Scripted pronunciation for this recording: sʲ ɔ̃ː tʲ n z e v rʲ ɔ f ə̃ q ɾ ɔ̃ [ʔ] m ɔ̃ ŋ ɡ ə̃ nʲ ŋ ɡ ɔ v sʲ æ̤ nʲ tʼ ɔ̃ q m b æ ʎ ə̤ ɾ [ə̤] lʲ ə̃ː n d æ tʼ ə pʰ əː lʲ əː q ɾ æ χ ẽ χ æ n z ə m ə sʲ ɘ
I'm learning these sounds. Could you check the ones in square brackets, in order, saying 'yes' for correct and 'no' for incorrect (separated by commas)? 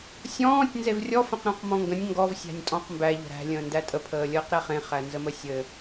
no, no